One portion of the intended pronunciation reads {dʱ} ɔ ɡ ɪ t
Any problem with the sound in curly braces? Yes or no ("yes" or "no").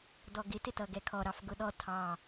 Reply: yes